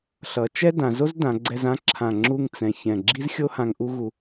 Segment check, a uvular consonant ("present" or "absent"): absent